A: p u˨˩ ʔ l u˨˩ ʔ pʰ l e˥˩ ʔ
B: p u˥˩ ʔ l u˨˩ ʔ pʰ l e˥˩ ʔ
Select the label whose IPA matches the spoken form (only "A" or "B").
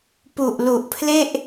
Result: A